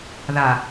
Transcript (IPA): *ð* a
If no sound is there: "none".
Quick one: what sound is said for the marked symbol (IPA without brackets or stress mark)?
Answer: ð